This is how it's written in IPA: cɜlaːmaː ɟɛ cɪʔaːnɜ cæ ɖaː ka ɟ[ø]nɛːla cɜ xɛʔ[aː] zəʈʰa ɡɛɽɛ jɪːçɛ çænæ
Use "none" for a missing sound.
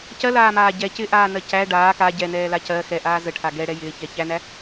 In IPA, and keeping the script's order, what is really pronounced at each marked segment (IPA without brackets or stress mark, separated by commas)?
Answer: ɛ, aː